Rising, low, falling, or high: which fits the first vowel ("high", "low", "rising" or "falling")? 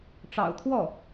low